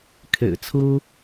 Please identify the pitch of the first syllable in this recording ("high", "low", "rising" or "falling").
low